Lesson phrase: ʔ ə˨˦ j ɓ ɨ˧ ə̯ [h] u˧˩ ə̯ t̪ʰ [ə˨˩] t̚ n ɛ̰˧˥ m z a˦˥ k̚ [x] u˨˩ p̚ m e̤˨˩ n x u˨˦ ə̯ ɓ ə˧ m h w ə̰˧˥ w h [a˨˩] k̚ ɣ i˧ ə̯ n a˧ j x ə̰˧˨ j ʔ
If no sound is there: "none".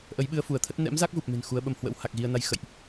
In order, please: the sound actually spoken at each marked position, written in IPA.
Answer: f, ə˦˥, ɣ, a˨˩

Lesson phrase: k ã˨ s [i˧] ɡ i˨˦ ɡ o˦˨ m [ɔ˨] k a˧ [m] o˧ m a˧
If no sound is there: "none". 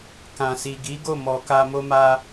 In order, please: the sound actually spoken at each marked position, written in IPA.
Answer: i˨, ɔ˨, m

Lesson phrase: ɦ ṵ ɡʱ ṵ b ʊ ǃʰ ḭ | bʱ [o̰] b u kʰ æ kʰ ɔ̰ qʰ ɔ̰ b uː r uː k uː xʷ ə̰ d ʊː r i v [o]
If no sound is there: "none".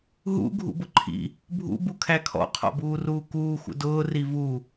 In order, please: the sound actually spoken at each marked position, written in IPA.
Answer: ṵ, u

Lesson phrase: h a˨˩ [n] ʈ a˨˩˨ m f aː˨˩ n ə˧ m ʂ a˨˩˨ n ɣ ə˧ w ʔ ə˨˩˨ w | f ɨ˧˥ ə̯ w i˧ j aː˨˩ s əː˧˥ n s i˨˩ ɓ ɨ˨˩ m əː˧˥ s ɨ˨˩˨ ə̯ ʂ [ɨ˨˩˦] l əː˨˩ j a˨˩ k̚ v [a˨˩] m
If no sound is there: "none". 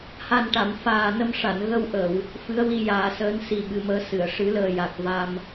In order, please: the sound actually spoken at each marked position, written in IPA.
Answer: n, ɨ˨˩˦, a˧

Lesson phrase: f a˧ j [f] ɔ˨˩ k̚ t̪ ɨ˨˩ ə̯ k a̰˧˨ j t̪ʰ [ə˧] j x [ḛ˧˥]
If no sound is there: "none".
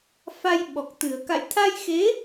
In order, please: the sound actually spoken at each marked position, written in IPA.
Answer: ɓ, a˧, e˨˦

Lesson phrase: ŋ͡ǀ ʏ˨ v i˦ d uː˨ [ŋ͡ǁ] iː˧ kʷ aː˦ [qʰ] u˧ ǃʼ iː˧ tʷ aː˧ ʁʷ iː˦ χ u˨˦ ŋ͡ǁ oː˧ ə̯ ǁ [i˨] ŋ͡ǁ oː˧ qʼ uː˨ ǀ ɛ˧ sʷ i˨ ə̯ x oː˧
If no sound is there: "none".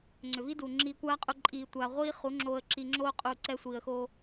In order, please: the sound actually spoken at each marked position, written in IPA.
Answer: ŋ͡ǁ, qʼ, i˧

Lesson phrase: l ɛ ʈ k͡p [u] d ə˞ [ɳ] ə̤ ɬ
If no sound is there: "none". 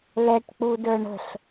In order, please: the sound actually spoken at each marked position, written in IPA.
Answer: u, ɳ

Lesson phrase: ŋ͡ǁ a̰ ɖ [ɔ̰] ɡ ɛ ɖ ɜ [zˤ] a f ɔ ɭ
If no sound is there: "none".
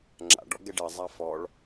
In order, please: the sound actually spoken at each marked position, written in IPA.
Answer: ɔ̰, zˤ

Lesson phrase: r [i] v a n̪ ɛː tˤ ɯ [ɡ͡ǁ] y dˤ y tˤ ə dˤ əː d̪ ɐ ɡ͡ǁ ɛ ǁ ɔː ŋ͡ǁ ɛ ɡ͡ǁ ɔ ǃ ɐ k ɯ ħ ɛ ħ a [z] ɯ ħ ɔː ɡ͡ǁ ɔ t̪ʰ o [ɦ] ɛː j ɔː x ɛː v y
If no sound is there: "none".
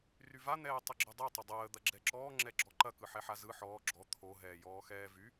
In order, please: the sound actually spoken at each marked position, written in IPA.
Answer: y, ɡ͡ǁ, z, ɦ

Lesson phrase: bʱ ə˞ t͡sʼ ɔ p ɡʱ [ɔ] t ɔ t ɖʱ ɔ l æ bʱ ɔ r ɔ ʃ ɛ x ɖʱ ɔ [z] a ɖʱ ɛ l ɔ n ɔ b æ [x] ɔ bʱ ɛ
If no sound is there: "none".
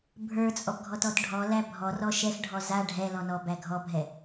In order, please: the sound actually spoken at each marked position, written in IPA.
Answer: ɔ, z, ɡʱ

